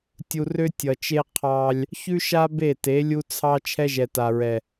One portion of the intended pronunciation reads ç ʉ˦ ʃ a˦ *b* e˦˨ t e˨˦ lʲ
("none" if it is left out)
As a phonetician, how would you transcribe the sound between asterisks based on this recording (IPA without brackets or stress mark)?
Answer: b